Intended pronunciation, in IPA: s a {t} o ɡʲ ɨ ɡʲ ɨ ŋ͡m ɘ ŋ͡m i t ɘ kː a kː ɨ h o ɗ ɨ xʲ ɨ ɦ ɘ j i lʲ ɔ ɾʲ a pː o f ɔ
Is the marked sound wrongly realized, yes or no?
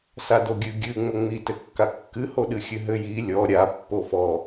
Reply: yes